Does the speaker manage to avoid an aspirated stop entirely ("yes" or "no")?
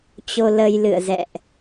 yes